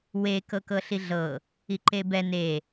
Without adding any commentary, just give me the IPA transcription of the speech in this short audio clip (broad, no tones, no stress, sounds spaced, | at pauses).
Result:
w e k ɤ k ɤ ɬ i ɮ ɤ | i ǃ e b ɛ n e